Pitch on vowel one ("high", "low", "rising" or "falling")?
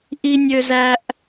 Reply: high